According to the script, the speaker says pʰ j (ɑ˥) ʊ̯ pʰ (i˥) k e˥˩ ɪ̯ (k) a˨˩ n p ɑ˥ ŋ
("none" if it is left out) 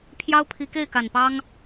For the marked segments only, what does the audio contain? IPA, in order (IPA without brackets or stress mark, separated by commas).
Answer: ɑ˥, i˧˥, k